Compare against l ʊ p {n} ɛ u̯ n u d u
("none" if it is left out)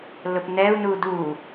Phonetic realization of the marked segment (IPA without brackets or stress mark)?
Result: n